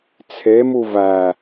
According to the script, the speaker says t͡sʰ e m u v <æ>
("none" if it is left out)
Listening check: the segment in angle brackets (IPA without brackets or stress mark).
æ